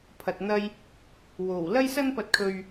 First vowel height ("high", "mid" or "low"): low